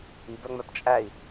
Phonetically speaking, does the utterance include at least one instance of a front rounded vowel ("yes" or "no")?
yes